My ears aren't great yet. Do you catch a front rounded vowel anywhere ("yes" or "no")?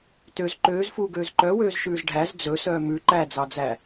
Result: yes